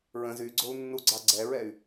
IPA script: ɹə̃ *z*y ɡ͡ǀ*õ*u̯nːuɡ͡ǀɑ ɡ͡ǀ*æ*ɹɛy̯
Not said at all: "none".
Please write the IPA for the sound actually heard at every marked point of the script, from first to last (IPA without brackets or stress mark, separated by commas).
z, o, ɛ